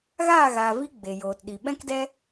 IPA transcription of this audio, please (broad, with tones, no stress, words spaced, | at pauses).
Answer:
ɣa˦˨ɣa˨vi˧ ɡ͡be˨joː˨tɗi˨ ɓɛ̃˧kdɛ˧